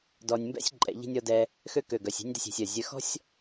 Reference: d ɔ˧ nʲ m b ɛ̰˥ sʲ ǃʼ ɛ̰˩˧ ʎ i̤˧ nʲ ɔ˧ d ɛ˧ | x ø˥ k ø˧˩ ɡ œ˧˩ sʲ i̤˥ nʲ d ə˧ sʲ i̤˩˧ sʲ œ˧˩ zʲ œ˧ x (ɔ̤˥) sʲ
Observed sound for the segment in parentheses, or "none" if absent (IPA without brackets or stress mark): ɔ̤˥